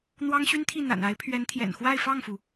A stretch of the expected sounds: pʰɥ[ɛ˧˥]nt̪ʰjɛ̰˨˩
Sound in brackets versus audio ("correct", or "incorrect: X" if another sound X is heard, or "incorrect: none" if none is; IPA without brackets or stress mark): correct